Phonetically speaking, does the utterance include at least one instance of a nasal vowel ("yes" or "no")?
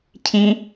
yes